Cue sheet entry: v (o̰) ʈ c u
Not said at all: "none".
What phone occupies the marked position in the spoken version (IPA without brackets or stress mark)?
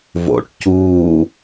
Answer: o̰